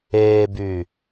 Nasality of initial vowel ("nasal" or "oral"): oral